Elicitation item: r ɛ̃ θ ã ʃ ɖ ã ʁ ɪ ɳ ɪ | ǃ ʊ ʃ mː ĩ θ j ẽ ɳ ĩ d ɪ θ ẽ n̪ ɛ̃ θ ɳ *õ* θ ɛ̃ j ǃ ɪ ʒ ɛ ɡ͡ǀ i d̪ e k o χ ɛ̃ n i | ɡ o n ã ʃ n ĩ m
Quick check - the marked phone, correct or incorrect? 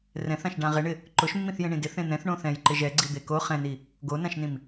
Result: correct